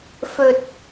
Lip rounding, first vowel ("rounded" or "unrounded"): rounded